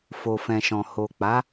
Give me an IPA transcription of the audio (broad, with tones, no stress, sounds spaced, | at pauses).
f o˨ f ɛ̃˨ ʃ ɔ̃˨ h o˨ k͡p a˨˦